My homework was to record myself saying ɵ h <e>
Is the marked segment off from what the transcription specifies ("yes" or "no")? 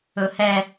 yes